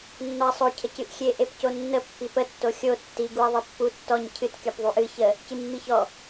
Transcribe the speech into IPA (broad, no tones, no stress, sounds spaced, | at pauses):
nː ɔ ɐ̯ sˤ o cʰ ə c ɨ ʔ xʲ e ʔ e p c o nː ə pː i p ə tː o xʲ o tː i ɡ u ɐ̯ ðˤ i pː u tː ɔ ɲ cʰ ɨ t kʲ ɔ p ðˤ u ʔ ɨ ç ə | c ɨ mː i ç ɔ